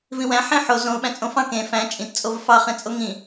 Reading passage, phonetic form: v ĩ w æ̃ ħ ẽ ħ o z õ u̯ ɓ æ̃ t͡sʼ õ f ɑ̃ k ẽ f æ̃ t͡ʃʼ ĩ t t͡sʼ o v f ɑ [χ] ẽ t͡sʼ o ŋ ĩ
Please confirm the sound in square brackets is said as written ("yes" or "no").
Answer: yes